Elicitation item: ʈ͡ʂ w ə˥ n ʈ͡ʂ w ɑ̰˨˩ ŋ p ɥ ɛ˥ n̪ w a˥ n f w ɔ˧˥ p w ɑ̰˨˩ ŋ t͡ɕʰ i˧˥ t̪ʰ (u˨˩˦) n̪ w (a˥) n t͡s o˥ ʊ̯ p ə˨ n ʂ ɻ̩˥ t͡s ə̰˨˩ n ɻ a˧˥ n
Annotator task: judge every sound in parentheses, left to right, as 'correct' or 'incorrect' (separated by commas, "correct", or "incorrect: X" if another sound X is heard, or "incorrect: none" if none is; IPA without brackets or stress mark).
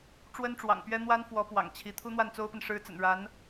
incorrect: u˥, incorrect: a˥˩